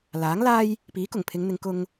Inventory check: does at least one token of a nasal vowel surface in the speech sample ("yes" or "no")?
no